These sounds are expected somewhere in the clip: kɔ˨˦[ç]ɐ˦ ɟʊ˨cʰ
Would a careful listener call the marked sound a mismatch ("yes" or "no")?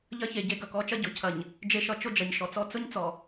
yes